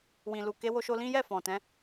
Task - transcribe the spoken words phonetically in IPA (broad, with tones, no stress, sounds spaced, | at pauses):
w ĩ˨ l u˨ k e˨˦ w o˧ ʃ o˧ l ĩ˦ j ɛ˦˨ f ɔ̃˨ t ɛ̃˨˦